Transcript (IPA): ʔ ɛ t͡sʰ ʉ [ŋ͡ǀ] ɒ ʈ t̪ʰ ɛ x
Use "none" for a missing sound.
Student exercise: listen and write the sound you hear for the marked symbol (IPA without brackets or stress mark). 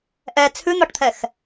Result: n̪